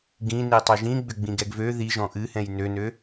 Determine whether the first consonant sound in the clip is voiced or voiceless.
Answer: voiced